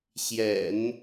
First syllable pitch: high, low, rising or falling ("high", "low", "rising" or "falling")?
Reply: low